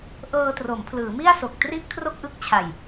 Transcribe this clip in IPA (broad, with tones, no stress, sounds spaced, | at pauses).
ʔ ɤː˧ t r o˩˦ m pʰ l ɯː˩˦ m i˥˩ a̯ s o˨˩ k̚ t r i˥˩ ʔ kʰ r o˥˩ k̚ ʔ ɯ˦˥ k̚ t͡ɕʰ a˨˩ j